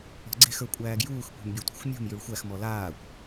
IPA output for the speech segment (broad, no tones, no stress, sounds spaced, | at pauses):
ɔ̤ ɡ͡ǀ e̤ x ə˞ kʷʼ æː ɡ j uː x kʷ e̤ m bʲ e tʷ a̤ xʷ mʲ ṳ m j ʉ ɭ xʷ æ x m ɔ l aː kʷ